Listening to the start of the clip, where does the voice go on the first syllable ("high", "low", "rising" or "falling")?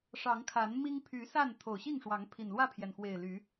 rising